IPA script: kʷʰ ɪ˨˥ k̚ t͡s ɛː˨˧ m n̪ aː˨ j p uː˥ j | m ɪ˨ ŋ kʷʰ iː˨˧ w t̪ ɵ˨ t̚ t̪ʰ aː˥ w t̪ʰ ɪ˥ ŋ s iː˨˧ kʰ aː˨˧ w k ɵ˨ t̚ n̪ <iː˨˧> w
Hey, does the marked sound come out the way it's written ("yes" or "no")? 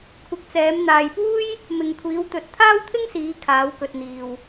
no